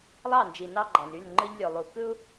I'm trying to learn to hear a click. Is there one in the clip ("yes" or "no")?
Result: yes